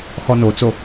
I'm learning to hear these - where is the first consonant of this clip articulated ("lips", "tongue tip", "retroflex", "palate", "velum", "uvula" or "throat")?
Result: velum